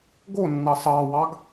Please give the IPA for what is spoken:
ɡ o nː ɑ s ɑ w ɑ ɡ

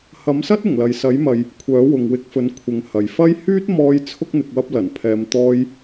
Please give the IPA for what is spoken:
h ɐ˨˥ m s ɐ˥ t̚ ɪ˨˩ ŋ l ɐ˨ j s ɐ˨˥ j m ɐ˨ j | kʷʰ œː˨˥ w ʊ˨ ŋ w ɪ˧ k̚ f ɵ˨˥ n kʷʰ ɪ˨ ŋ h ɐ˨ j f ɐ˥ j h yː˥ t̚ m ɔː˧ j t͡sʰ ʊ˥ k̚ n̪ ɪ˨˥ k̚ w ɐ˥ p̚ l ɐ˨˩ n pʰ ɛː˨˧ m t̪ ɔː˧ j

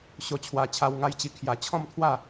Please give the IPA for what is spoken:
ɕ o˧ t͡ɕʰ w a˧ t͡ɕʰ a˧ w ŋ a˧ j t͡ɕ i˧ kʰ j a˧ t͡ɕʰ ɔ̃˥˧ m t̪ʰ w a˥˧

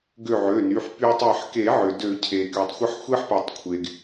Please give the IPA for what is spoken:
ɡ ø˧˩ ʕ ø˩˧˩ n y˩˧˩ ħ p y˧ tˤ e˧˩ ħ k e˨˩˦ ʕ ʏ˩ d ø˨˩˦ cʰ e˩ k y˩ tˤ xʷ ə˧ ħ xʷ e˧ ħ p ɛ˩ tˤ kʷʰ e˩ ɡ

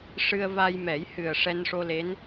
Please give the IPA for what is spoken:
ʂ ɨ˧ ə̯ v a˧ j m ɛ˨˩˦ j h ɨ˨˩ ə̯ ʂ ɛ˧ n ʂ o˧ l e˧˥ n

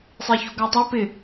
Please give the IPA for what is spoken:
sˤ e ç o̤ ɡ a tˤ a p ɪ

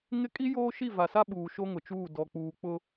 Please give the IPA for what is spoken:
ŋ ɪ˦ kʼ i˦ j oː˦ ʃ i˦˨ v a˨ s a˦ ɓ uː˨ ʃ o˦ ŋ ʊ˨ t͡ʃ uː˦˨ d ɔ˨ k͡p uː˨ k͡p ʊ˦

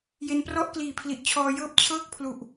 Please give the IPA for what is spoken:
j e˧ n p r ɔ˥˩ ʔ k l iː˨˩ pʰ l i˨˩ ʔ t͡ɕʰ ɔː˧ j ɤː˥˩ p̚ t͡ɕʰ ɤː˥˩ k̚ pʰ l u˨˩ ʔ

